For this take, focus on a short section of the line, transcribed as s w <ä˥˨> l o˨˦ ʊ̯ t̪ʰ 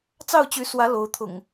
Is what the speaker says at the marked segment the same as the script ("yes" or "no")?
no